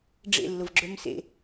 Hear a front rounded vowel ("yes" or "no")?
yes